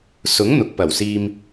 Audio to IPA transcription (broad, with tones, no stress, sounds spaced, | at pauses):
s ʊ˨˥ ŋ n̪ ʊ˨ k̚ p ɐ˨˩ w s iː˧ m